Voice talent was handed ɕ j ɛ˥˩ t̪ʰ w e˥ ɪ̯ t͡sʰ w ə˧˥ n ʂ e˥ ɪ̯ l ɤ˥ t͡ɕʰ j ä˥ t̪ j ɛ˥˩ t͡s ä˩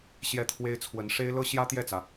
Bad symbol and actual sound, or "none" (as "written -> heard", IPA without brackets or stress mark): t͡ɕʰ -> ɕ